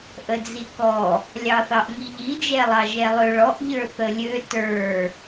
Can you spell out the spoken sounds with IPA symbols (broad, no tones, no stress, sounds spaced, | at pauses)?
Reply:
ʔ ə d͡z i k ɔ | lʲ ɑ θ ɑ ʔ ŋ i ʎ i d͡ʒ ɛ lˠ ɑ ʒ ɛ lˠ ø ɭ ɔ ʔ ʎ ə˞ θ ə lʲ ø t ə˞